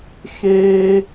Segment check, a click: absent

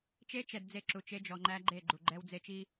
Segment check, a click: present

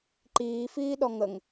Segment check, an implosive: present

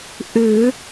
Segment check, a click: absent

